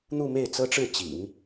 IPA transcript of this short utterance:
n̪ u˥˧ m e˥˩ ɪ̯ t͡s ɤ˥ ʈ͡ʂ ɻ̩˥˩ t͡ɕ ḭ˨˩˦ ŋ

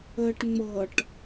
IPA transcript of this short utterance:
əː ʈ ŋ͡m ɤ ʈ

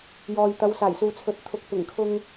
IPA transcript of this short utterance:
j ɔː˨ j t̪ ɐ˨˧ w s aː˨˩ j s uː˨ t͡sʰ ɵ˨ t̚ t̪ʰ ʊ˨ k̚ p ɪ˨˩ ŋ kʰ ʊ˧ ŋ

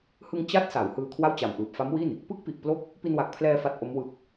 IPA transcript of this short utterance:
h ɯ˧ ŋ t͡ɕ a˦˥ t̚ s a˩˦ w h ɯː˧ kʰ w a˥˩ w t͡ɕ a˨˩ m ʔ ɯː˨˩ p̚ f a˦˥ m w i˥˩ n | p ɯ˦˥ k̚ p i˨˩ ʔ p l o˦˥ k̚ | p i˧ n w a˨˩ k̚ pʰ l ɛː˧ f a˦˥ t̚ ʔ o˦˥ m w ɯ˨˩ k̚

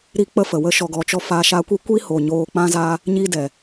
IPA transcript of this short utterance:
ɾ i˦ k͡p ə˦ f ə˨ w ə˧ ʃ ɔ˨ ɡ ɔ˨ t͡ʃ ɔ˧ f a˧ ʃ a˧ kʷ i˦ kʷ i˦ h o˨ ɲ oː˧ k͡p ã˦ z aː˦ | ɲ i˦ d ɛ˨

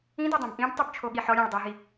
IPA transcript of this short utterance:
ĩ d o dˤ õ b ʔ ĩ b tˤ u b t͡ʃʰ o ɠ i ħ ɔ ɾʲ ɛ̃ ɭ dˤ o ɦ i

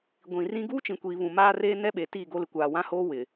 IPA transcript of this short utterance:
ɡʷ ĩ˨ r ĩ˦ ɡ uː˦ t͡ʃ ĩ˨ kʷ iː˨ β ũ˨ m aː˦ r eː˦ n ɛ˦ ɓ e˨ t iː˦˨ ɡ o˦ l ɪ˨ kʷ aː˨ w ã˦ h oː˦ w ɪ˨

